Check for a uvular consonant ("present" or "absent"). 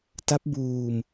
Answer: absent